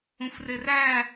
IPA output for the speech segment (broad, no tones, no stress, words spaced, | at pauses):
ũfreræ